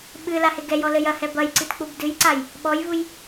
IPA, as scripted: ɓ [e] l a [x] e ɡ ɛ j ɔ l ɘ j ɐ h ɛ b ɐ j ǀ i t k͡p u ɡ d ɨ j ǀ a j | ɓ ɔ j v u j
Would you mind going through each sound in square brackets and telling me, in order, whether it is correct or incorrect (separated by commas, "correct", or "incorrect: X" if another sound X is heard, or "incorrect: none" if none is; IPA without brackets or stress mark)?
incorrect: ɨ, incorrect: h